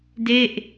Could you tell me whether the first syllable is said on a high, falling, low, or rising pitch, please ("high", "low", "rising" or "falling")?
falling